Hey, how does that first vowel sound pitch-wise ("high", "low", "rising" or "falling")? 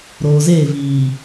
low